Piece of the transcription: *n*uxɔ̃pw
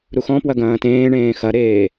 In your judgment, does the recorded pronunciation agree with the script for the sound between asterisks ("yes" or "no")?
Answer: no